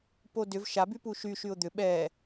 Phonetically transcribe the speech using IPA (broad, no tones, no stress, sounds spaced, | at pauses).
p o d ʏ v ʃ a b y p u ʃ y ʃ y ʊ̯ d̪ ʏ ɓ ɛ